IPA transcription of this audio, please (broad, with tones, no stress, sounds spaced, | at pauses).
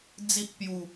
d͡z i˦ ʔ p j u˥˧